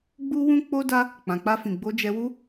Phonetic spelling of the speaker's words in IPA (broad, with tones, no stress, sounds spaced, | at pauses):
ɡ͡b u˦ w ũ˦ k͡p o˦ d a˦ | k͡p ã˨ k͡p a˧ f ĩ˨ ɡ͡b o˧ d͡ʒ ɛ˧ w u˦